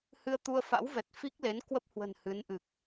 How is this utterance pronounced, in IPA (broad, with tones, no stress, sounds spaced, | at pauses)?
h ɨ˧ ə̯ t̪ u˧ ə̯ f a̰˧˥ w v ɛ˨˩ t̚ f i˦˥ k̚ l e˨˦ n k w ə˦˥ p̚ h w ə̤˨˩ n h ɨ˨˦ n ʔ ɨ˨˩ k̚